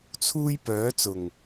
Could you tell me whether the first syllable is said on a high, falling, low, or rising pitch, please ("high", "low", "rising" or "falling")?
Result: high